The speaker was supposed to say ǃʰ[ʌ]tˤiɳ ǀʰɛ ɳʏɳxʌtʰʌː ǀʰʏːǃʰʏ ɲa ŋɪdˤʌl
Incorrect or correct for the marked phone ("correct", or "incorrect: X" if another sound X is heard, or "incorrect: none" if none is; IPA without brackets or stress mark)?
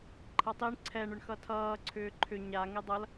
correct